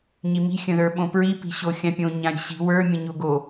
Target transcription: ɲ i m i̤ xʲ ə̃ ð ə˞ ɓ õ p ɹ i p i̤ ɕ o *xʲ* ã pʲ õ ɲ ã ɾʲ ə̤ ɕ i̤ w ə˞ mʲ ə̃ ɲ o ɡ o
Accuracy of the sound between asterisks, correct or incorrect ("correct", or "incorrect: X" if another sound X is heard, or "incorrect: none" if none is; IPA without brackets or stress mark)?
correct